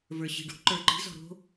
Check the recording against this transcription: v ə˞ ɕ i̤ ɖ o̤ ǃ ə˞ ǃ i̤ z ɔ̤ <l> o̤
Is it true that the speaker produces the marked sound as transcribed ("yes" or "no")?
no